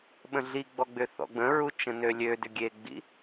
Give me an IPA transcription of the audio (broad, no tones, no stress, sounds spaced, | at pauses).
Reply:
ɓ ə̃ ɮ i ɡ͡b ɔ ɡ͡b ʏ θ ɔ̰ ɡ͡b ə̃ ɹ u t͡ʃ ə̃ n ø lʲ ø d ʏ ɡʲ e ɡ͡b ḭ